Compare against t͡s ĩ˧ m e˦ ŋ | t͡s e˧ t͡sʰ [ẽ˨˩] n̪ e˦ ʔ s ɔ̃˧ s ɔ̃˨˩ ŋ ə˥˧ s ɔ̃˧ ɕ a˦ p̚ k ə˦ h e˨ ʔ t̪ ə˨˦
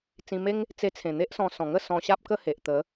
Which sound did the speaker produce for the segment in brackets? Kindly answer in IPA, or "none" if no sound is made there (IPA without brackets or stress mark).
ẽ˨˩